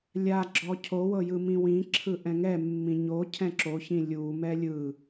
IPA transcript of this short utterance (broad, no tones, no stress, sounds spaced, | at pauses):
lʲ a ɡ͡ǁ ɔ cʰ o w ɤ j ɯ m ĩ w ĩ ǁʰ ɯ ʔ ɛ̃ ŋ ɛ mː ĩ ɲ o cʰ ɛ̃ ǁ o ç ĩ lʲ u m ɛ lʲ ɯ